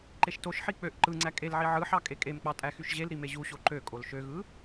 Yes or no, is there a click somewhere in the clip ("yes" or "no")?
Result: yes